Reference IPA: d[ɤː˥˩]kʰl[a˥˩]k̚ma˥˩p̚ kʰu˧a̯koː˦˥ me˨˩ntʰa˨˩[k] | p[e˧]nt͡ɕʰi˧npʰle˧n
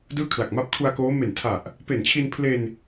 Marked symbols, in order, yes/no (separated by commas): no, no, no, no